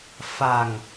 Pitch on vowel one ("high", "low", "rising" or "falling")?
low